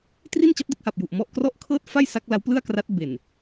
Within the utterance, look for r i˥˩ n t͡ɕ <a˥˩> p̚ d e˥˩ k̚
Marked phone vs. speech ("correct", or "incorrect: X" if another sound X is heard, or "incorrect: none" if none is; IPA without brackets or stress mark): incorrect: a˦˥